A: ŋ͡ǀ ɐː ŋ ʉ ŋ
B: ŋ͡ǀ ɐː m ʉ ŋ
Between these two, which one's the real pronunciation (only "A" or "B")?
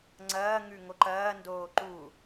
A